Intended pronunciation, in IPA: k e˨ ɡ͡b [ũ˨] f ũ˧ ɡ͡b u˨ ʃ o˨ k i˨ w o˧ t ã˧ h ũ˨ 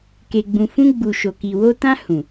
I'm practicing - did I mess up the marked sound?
no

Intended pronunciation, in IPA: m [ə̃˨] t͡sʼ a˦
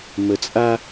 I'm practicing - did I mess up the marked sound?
yes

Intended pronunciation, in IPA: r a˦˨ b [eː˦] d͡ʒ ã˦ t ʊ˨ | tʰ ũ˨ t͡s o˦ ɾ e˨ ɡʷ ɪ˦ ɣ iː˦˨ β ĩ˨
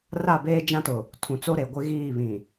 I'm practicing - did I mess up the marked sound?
no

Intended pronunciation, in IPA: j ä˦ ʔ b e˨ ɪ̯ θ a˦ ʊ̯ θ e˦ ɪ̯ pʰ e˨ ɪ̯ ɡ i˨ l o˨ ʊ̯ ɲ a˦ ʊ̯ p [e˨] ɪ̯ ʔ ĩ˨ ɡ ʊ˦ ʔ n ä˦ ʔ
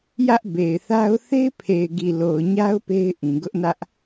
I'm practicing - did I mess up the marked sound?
yes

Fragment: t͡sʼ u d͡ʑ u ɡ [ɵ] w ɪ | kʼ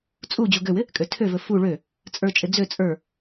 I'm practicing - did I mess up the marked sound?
yes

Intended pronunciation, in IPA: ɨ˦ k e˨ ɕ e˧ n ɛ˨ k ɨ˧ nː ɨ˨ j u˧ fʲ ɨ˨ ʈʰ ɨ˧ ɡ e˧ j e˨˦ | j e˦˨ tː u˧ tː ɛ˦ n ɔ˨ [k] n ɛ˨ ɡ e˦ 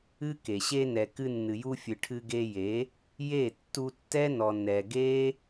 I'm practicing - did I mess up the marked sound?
yes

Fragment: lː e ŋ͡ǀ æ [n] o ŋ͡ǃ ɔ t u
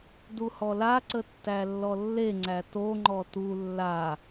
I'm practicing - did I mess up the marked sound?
yes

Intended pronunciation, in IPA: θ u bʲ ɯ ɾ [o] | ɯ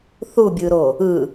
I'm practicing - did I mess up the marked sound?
no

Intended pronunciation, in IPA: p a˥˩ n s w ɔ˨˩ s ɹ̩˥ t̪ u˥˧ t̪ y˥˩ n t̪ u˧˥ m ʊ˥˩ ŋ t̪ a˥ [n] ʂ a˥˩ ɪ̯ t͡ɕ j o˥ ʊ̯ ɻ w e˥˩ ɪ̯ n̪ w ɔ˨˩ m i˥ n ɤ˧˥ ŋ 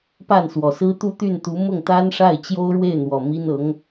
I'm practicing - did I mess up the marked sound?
no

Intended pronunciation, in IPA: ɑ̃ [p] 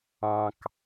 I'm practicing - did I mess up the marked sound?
yes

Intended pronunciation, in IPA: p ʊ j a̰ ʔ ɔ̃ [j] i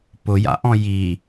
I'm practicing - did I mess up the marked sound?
no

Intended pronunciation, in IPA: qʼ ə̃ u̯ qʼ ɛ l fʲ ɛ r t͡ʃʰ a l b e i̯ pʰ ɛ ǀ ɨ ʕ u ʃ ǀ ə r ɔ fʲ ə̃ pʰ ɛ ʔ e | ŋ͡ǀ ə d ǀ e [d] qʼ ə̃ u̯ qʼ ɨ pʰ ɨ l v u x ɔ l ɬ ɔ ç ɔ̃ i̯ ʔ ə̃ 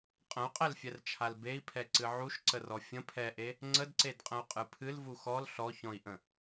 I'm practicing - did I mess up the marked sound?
no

